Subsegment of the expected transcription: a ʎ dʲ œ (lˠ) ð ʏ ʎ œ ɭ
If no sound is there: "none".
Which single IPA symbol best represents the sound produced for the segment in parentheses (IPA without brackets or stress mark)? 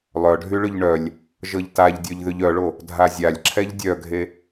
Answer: ʎ